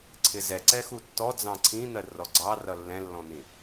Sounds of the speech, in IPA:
ǀʰ ɪ z ɛ ǀ ɛ x u tː ɔ d͡z ɑ̃ ǀʰ ĩ n̪ ɜ r ɔ ɡ͡ǀ ɑ r ʌ lː ɛ̃ lː ɔ̃ n̪ ĩ

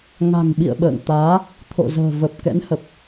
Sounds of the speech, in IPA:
ŋ a̤˨˩ ŋ ɓ ḭ˧˨ ə̯ ɓ ə̰ː˧˨ ŋ t̪ aː˨˦ | t̪ʰ o̰˧˨ z ə̤ː˨˩ v ə˨˩ p̚ k ɛ̰˧˥ n h ə˨˩ p̚

